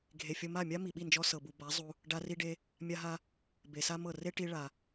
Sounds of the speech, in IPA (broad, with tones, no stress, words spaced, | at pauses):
ɡʱe˨fʲɤ˧ ma˦˨mʲa˦ mi˨ɓi˦˨nd͡ʒɔ˧ sɤ˨bu˨ ba˨˦ zˤu˧ | ɖa˧ ri˧ɖe˧ | mʲa˦ɦa˦ | be˨sa˦mɤ˦˨ re˦ʈi˧ ɭa˨